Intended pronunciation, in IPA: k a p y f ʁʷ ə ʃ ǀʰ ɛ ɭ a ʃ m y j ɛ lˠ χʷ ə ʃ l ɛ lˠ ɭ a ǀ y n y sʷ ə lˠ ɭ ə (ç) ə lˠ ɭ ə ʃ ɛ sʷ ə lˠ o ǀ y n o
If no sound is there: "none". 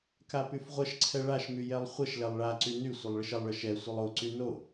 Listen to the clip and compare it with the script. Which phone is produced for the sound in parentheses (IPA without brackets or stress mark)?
ʃ